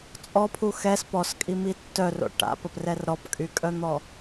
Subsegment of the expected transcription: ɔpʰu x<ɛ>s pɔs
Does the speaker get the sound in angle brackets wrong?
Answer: no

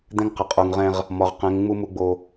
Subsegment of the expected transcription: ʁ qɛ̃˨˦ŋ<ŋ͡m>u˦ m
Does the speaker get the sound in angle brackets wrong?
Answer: no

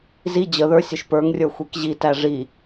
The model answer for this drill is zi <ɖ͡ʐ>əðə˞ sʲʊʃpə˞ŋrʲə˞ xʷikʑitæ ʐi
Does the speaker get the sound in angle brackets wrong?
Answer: yes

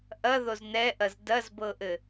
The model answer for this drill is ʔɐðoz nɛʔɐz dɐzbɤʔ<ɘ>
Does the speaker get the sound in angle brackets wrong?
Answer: no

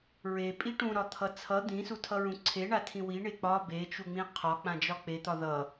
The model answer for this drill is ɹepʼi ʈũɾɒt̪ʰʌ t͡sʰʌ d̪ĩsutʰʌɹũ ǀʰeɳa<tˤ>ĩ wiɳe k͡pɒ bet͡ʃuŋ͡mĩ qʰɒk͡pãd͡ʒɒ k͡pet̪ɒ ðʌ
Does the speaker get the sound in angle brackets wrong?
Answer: yes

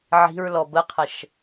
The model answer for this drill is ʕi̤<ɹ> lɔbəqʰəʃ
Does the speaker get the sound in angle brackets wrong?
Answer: no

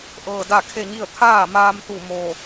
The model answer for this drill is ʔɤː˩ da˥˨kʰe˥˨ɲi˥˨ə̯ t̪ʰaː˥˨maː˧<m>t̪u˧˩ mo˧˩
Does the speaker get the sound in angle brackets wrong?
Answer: no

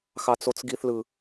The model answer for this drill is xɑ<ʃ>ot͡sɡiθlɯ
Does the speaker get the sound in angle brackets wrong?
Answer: yes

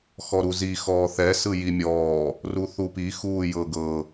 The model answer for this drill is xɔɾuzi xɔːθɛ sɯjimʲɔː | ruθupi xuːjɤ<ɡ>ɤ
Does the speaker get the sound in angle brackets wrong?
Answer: no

